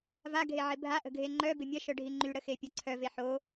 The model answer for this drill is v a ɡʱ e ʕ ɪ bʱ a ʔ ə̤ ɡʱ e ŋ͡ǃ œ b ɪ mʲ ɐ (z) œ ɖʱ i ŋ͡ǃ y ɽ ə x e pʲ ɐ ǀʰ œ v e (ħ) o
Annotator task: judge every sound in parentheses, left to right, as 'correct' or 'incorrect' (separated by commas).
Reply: incorrect, correct